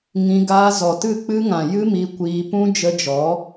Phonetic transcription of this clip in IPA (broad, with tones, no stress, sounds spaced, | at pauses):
ŋ ĩ˧ ɡ a˧ z ɔ˨ t ɨ˦˨ k͡p ɨ˦ ŋ ã˨ j ɨ˦ m i˧ kʷ iː˧ p ũ˦ d͡ʒ ə˧ d͡ʒ ɔ˨˦